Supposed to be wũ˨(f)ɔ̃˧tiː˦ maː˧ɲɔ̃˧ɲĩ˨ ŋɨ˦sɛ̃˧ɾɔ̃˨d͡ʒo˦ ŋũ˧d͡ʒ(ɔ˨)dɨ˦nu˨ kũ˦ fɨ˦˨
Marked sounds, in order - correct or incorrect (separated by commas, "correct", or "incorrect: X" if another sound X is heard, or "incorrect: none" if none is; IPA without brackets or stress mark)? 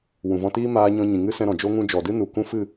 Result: incorrect: v, correct